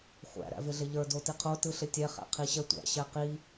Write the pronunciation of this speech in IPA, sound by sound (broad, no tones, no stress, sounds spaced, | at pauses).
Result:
χʷ æ̰ ɾ æ̰ v ɪ ɮ ɪ ʎ ə˞ d o t i qʰ o t ɯ ɬ ɪ tʲ ɛ χ æ̰ qʰ i ɕ ɛ tʷ æ̰ ɕ ɛ q i